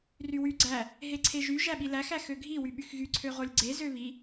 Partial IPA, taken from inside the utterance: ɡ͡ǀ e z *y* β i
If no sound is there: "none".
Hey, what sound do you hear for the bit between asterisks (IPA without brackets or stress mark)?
ø